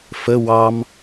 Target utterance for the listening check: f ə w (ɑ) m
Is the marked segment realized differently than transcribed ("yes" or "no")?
no